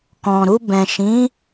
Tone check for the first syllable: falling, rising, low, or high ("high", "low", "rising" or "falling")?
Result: low